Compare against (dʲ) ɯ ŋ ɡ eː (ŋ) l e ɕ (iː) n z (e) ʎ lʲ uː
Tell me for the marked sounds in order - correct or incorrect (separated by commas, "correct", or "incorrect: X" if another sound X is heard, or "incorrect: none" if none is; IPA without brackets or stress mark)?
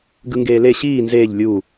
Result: incorrect: ɡ, incorrect: none, correct, incorrect: eː